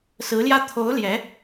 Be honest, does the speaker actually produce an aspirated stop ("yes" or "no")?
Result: yes